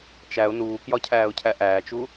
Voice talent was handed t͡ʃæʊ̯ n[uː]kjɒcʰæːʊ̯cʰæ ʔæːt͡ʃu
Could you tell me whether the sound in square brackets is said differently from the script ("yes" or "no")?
no